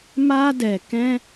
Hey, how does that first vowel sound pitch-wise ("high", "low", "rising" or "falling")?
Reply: high